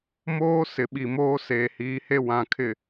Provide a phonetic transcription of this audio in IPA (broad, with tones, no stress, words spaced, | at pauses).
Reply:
moː˦ sɪ˨ɓi˨moː˦ seː˨hiː˨˦he˦ wã˨kʰɪ˨